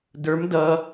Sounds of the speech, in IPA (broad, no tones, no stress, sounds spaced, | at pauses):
d ə˞ m d ʌ